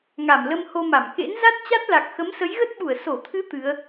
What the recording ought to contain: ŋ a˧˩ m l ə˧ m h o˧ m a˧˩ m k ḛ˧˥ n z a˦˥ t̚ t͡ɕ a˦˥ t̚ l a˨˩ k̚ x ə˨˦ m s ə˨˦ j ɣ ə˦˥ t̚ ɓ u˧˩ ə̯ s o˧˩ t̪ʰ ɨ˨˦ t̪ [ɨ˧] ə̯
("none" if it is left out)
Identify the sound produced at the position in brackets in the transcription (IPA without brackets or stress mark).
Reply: ɨ˨˦